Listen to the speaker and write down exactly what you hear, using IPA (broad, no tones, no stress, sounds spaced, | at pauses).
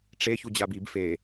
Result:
ʈ͡ʂ e ç u d͡ʑ a b i b f e